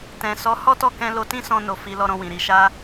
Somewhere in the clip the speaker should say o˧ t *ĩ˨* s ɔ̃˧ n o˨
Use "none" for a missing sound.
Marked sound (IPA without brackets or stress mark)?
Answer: ĩ˦